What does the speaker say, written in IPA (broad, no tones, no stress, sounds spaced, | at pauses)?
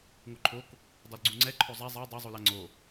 ŋ o ǃʰ o k | dˤ u l ɡ͡ǀ u ŋ͡ǀ ɛ ǃʰ o zˤ æ zˤ æ dˤ o zˤ u l a ŋ͡ǀ o